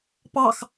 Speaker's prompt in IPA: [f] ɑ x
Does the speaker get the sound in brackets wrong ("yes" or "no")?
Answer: yes